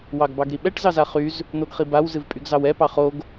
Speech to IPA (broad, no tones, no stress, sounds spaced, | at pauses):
w ɑ ɡ b ɑ ɡ ɾ i ɓ ɛ ʈ z ɑ z a χ y z | n̪ o ɡ χ i b a w z ɨ v pʼ y ɡ z ɑ w ɛ p ɑ χ o ɡ